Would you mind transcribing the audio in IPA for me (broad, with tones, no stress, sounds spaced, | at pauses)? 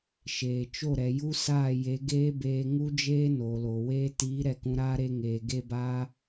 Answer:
ʃ eː˨ t͡ʃ o˦˨ ɾ ɛ˨ j u˦ s aː˦˨ j e˨˦ ɡ eː˦ b eː˧ ŋ u˦ d͡ʒ eː˦ n oː˨ l oː˨ w eː˧ t iː˨˦ ɾ ɛ˧ k ũ˧ ɾ aː˦ ɾ e˧ ŋ eː˨ ɡ e˧ b aː˧